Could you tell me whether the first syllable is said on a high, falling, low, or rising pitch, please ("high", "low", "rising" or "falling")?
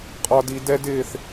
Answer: high